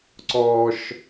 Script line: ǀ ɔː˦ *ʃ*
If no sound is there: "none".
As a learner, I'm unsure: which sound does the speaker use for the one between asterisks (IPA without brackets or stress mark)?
ʃ